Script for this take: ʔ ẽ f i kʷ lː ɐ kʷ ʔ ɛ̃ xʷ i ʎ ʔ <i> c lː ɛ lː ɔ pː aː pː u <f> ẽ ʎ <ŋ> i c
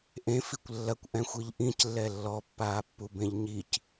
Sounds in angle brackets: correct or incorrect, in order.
incorrect: ĩ, incorrect: b, incorrect: ɲ

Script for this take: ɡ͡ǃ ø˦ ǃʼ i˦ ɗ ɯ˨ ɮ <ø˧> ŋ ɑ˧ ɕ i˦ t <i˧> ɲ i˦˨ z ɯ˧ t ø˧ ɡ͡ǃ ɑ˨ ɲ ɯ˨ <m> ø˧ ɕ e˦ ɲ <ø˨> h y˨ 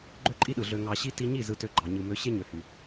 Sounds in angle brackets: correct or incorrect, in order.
correct, correct, correct, correct

